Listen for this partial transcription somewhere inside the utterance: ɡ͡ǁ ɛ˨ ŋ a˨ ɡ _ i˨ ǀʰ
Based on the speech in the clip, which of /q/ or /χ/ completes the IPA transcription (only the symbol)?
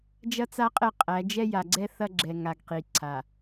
q